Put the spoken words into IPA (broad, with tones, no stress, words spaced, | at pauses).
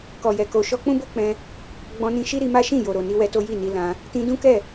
kɔ˨jɛ˨ko˧ ʃɔ˧k͡pũ˦bo˦k͡pɛ̃˧ | ɡ͡bɔ̃˧nĩ˧ ʃi˦ɾi˧ma˦ ʃĩ˦˨ jo˨ɾo˨ni˧ wɛ˧to˦ ji˦˨ni˧ lã˧ | tĩ˧dũ˦kɛ˦˨